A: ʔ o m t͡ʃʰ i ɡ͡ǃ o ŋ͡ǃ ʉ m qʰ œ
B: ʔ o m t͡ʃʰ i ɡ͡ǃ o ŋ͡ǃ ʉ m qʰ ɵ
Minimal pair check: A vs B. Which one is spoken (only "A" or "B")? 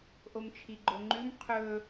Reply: B